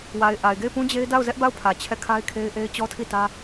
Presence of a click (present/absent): absent